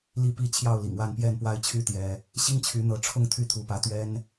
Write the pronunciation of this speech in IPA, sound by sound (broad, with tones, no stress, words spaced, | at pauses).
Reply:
li˥˨pi˦ t͡ɕʰjɑ˥˨ʊ̯lḭ˨˩ŋwa˥˨npjɛ˥˨n pwa˦ɪ̯t͡ɕʰy˦ t̪jɛ˦ | ɕi˦ŋt͡ɕʰy˨˦n̪ɤ˨˦ʈ͡ʂʰʊ˥˨ŋ t̪ʰy˥˨t̪ʰu˨˦pä˨˦ t̪ɥɛ˦n